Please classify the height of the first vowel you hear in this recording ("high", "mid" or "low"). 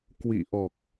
high